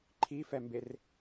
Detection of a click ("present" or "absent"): present